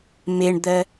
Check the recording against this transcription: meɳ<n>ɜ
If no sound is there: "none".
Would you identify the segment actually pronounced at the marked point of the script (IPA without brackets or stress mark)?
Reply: d̪